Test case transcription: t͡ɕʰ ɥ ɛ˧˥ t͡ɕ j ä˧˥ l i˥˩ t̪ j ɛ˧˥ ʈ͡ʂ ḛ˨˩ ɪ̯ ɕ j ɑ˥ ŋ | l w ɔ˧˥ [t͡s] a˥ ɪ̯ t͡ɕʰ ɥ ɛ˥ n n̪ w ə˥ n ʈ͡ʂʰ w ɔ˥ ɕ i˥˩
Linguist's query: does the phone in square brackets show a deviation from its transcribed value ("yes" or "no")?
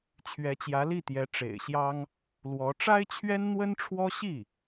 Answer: yes